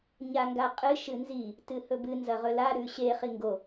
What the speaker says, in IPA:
ɲaŋɡaqʼɨ ʃɨnzi | tɨhɵbɨ nzɐʁɵla ɾʉɕe χiŋɡo

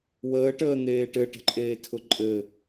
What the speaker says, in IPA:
wəːʈəːn̪eː ʈɘʈə̤ǃʼeːtʰʊ ǃʼɘ

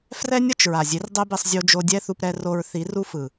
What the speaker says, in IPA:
frɛ˦nʲʌ˦t͡ʃ ɹa˨zʲe˨˦rdˤe˦bi˧sˤ zʲo˧d͡ʒo˧ dʲɛ˦θu˧pɾɛ˧ro˧ɹ θi˨˦ru˦fɯ˨

